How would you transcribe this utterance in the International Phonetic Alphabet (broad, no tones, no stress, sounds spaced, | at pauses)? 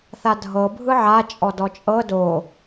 θ a dʱ ɤ bʱ ɯ ʕ a t͡ʃʼ ɔ d ɔ t͡ʃʼ ɤ d o